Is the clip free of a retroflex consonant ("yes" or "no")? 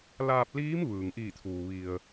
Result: yes